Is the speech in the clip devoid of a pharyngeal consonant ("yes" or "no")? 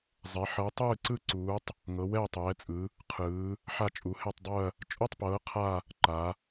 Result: no